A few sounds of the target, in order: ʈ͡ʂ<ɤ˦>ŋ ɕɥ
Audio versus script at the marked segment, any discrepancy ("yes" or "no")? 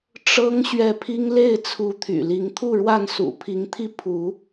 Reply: no